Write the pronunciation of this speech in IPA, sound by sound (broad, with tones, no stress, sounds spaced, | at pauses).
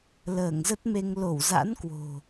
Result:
l əː˧˩ ŋ z ə˦˥ t̚ m e˧ ŋ l o˧˩ w z a̰˧˥ n k w o̤˨˩